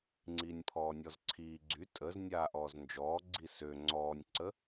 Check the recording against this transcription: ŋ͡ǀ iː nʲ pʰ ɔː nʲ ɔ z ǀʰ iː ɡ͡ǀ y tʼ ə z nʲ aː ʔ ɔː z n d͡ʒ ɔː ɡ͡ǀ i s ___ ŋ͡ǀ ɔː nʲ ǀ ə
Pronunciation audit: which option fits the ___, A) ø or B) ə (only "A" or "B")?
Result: A